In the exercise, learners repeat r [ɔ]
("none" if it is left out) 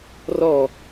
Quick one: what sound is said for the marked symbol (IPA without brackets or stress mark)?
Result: ɔ